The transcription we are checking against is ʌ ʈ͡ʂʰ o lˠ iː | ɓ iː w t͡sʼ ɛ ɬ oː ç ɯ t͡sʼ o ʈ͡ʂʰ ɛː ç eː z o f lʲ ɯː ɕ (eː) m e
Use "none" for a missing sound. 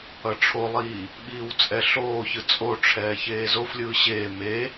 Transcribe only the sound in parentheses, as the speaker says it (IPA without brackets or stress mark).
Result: eː